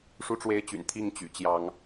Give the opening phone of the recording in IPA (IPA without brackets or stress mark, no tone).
ʂ